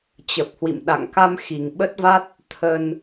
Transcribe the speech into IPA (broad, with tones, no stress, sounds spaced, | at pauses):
t͡ɕ ə˨˩ p̚ h w ḭ˧˨ m ɗ a̰˧˨ ŋ k a˧ m x i˨˩ ŋ ɓ ə˦˥ t̚ v a˦˥ t̚ | t̪ʰ ə˧ n